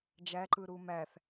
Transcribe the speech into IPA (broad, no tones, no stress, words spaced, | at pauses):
d͡ʒæǃɯ ɾumæθ